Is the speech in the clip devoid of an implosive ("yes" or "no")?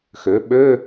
no